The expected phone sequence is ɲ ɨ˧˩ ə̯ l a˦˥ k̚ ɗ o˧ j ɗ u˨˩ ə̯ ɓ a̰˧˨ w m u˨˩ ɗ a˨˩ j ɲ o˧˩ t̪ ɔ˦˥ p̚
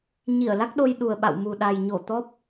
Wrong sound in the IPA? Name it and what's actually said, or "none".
ɨ˧˩ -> i˧˩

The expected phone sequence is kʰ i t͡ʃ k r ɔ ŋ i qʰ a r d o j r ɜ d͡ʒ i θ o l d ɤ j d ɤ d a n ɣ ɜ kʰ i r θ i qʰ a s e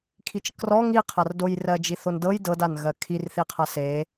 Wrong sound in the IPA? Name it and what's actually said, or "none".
l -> n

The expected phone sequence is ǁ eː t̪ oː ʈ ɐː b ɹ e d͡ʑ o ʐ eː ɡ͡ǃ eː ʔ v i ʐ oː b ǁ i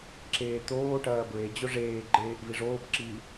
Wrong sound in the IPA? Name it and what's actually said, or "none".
none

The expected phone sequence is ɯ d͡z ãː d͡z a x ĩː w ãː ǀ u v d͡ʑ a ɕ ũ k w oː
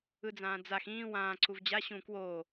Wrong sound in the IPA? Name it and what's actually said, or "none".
none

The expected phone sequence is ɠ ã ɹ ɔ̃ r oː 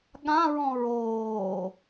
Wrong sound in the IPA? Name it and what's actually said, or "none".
r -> ɹ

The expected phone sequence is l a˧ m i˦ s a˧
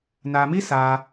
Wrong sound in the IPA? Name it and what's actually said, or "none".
l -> n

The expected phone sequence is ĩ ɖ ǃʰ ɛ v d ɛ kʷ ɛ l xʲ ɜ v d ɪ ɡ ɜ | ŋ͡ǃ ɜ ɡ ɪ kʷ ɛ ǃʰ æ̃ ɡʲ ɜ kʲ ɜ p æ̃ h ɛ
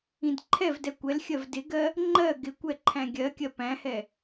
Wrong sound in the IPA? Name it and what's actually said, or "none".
ɖ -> d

